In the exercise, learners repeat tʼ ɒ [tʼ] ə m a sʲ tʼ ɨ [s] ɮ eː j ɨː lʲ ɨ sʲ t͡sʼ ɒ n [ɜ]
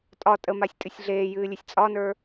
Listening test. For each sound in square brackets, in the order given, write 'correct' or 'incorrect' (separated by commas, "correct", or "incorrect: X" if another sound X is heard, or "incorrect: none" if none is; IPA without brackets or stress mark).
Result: correct, incorrect: sʲ, incorrect: ə˞